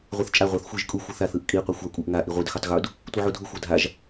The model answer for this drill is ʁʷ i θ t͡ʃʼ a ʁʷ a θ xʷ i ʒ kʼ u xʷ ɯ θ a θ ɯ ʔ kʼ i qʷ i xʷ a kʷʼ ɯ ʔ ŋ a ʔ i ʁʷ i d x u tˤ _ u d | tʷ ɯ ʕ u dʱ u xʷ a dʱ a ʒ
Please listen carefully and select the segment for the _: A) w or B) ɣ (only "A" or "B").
B